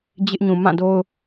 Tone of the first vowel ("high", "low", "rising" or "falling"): high